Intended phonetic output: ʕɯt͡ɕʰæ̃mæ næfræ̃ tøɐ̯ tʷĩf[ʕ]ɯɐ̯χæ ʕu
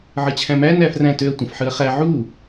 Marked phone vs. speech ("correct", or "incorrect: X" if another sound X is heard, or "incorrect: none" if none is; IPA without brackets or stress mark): incorrect: ħ